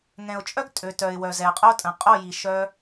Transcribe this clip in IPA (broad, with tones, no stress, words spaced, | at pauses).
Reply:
ŋɛ̃˨ʊ̯t͡ʃʼœ˦ɡ tʼø˨tœ˨ɪ̯wœ˨ zɛ˨ə̯qʼo˦tʼə̃˨qʼo˦˨ ji˨ʃœ˧